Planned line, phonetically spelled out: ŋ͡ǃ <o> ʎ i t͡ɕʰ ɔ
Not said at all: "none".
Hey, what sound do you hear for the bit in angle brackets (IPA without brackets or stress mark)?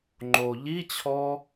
o